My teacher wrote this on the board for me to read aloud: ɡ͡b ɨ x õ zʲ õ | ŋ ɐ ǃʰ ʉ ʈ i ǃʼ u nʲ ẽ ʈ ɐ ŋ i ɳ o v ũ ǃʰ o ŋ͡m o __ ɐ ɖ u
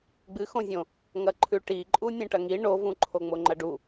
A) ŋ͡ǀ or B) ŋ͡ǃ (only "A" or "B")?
B